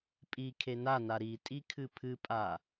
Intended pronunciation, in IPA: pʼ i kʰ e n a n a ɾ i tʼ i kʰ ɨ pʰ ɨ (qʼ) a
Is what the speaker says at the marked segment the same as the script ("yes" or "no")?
no